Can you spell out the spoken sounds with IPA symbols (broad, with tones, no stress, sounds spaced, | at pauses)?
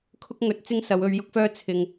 kʰ ʊ˥ k̚ ŋ ɵ˧ t̚ t͡s ɪ˥ ŋ s ɐ˨˧ w ɵ˧ ɥ j ʊ˥ k̚ f œː˥ t͡sʰ ɪ˨ ŋ